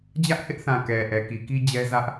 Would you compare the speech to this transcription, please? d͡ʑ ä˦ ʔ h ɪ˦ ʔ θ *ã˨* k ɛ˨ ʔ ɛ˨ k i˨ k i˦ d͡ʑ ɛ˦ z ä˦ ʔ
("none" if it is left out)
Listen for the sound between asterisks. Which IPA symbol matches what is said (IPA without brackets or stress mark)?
ã˨